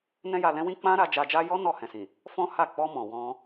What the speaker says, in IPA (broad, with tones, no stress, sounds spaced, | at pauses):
n ɛ̃˦ j a˧ l ɛ̃˦ w ĩ˦ k͡p ã˦ ɾ a˧ d͡ʒ a˧ d͡ʒ a˦ j ɔ˦ n ɔ˦˨ h ɛ̃˨ s ĩ˨ | f ɔ̃˦ h a˦˨ k͡p ɔ˧ m ɔ̃˨ w ɔ̃˧